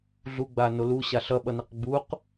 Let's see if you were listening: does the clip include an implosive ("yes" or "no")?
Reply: yes